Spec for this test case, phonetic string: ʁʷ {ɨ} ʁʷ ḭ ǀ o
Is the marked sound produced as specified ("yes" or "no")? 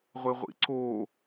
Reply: no